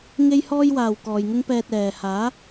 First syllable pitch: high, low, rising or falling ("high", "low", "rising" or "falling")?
high